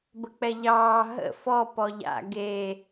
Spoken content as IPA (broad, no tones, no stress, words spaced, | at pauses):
bək͡pɛʎɑː ɦə̰ fɔ pɔʎa̰ ɡe